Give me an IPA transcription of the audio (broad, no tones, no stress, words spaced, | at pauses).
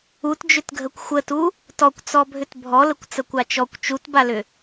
utd͡ʒʏtɡʱəkʷ xʷətu | tɔkʷt͡sɔ bʱʏtbʱɔləkʷ t͡səkʷat͡ʃɔkʷ t͡ʃutbalʏ